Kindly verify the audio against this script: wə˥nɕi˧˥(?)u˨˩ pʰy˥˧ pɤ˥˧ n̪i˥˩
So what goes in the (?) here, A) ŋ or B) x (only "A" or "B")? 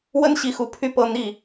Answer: B